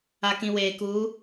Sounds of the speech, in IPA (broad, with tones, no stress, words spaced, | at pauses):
a˨kĩ˨weː˨ kuː˨˦